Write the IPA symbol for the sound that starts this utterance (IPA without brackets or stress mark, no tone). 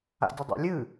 a̰